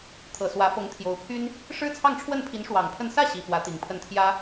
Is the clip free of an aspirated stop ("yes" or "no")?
no